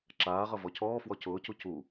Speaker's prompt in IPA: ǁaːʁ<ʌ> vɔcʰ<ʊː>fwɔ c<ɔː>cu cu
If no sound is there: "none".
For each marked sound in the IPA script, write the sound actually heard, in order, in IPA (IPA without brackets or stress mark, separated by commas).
ʌ, ɔː, ʊː